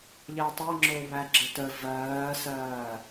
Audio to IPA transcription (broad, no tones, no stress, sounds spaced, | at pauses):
ʎ ɜ tˤ ɜ ŋ͡ǁ o β æ ɡ͡ǁ ə t ə v ɜː s ɜː